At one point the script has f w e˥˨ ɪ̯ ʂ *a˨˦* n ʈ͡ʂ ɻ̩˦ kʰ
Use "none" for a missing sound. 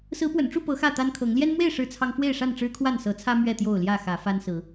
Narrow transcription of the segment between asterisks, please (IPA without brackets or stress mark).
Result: a˥˨